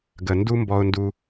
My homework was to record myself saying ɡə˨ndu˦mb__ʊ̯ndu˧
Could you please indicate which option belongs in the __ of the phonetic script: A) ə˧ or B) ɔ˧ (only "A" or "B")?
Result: B